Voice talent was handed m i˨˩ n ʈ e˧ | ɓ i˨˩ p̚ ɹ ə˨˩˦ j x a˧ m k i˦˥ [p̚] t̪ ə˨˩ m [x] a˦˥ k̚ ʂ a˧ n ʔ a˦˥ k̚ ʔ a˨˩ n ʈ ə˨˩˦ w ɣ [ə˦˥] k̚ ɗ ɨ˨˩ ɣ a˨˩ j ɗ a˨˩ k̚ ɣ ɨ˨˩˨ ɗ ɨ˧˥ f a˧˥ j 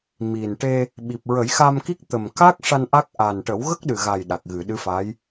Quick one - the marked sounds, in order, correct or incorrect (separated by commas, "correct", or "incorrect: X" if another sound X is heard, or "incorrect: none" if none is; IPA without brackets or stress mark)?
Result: incorrect: k̚, incorrect: k, correct